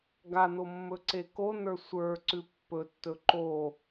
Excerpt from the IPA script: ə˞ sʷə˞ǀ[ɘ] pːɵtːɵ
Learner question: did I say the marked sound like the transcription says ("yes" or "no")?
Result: no